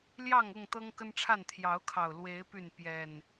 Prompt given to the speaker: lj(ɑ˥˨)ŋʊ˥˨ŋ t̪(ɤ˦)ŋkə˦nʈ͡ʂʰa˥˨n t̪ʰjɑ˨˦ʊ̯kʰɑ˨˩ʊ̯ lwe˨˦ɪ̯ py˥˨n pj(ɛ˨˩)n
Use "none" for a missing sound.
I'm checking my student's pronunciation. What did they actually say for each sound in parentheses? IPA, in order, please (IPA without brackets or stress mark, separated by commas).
ɑ˥˨, ɤ˦, ɛ˨˩